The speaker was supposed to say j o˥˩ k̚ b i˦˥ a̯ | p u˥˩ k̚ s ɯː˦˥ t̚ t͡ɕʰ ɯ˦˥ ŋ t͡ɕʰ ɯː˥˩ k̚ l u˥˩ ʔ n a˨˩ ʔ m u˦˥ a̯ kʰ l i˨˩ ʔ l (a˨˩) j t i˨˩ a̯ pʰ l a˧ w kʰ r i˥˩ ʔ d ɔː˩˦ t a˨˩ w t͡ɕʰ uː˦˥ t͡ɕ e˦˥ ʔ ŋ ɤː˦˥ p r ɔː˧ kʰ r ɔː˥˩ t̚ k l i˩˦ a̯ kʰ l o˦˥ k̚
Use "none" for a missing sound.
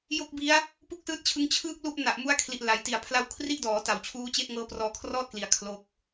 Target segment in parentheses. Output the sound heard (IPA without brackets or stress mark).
a˩˦